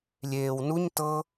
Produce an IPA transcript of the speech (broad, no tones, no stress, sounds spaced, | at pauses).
lʲ eː w n u ɲ t ɤ